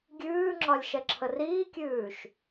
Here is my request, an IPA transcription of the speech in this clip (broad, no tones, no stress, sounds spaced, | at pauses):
ɡʲ ʉː ŋ͡ǁ ɒ lʲ ʃ ɛ ǁʰ ə r iː kʲ ʉː ʃ